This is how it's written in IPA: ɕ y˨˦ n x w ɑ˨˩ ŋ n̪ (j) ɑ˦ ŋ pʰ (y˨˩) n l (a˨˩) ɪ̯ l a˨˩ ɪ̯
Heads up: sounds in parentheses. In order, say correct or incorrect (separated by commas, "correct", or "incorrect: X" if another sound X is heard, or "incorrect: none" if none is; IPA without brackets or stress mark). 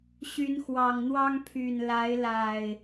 incorrect: w, correct, incorrect: a˨˦